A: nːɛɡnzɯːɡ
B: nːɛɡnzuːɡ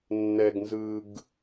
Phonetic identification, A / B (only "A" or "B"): A